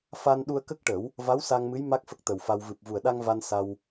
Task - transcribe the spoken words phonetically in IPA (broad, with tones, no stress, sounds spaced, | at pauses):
f a˧ n ɗ u˧ ə̯ k ə˦˥ k̚ ʈ ə˨˩˦ w | v a˧˥ w s a˧ ŋ m ɨ˧˥ j m a˦˥ k̚ f ə˦˥ k̚ t̪ ə˨˩ w f a˧ w v ɨ˨˩ p̚ v u˨˩ ə̯ ɗ a˧ ŋ v a˧ n s a˧ w